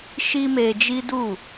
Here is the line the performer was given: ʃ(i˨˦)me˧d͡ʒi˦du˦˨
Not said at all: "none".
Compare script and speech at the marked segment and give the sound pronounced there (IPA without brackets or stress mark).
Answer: i˦